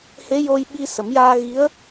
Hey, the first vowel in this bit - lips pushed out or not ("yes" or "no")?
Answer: no